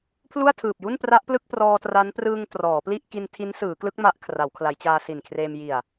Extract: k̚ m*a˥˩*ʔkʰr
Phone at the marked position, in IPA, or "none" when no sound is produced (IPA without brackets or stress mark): a˦˥